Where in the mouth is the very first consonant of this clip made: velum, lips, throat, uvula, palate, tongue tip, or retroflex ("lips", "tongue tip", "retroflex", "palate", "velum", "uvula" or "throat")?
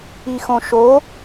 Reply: velum